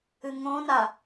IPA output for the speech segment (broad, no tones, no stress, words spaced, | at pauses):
ɨŋõna